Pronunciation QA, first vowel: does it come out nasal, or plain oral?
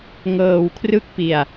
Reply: oral